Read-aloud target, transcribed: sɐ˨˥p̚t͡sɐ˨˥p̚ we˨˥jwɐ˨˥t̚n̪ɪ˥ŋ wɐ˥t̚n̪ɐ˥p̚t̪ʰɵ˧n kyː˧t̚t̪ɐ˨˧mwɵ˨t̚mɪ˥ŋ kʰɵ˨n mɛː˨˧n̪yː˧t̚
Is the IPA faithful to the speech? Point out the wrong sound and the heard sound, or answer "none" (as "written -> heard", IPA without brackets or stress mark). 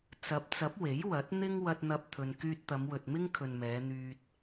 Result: s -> t͡s